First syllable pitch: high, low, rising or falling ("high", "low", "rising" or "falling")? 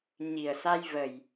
low